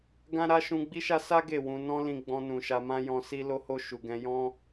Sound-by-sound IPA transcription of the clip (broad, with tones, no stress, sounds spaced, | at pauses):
ɡ ã˦ ɾ a˦ ʃ ũ˧ ɡ͡b i˦ ʃ a˦ s a˦ ɡ e˦˨ w ũ˧ n ɔ̃˦ l ĩ˧ ɡ͡b ɔ̃˧ n ũ˨ ʃ a˧ m ã˦ j ɔ̃˧ s i˦ l o˧ h o˧ ʃ u˨ ɡ ɛ̃˧ j ɔ̃˦